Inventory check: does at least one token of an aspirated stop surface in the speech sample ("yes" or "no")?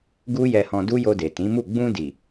no